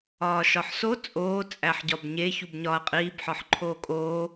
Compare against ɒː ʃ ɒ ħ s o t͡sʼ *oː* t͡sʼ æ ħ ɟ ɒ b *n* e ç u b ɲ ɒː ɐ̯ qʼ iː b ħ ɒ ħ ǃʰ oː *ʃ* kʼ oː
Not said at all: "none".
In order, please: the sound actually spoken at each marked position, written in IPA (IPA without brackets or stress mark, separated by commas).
oː, ɲ, none